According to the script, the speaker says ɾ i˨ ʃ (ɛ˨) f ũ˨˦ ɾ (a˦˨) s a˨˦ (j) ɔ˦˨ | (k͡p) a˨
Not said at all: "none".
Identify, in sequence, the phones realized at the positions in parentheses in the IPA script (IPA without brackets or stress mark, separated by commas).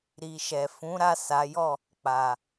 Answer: ɛ˨, a˦˨, j, k͡p